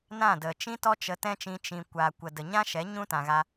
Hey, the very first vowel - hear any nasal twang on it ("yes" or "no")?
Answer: yes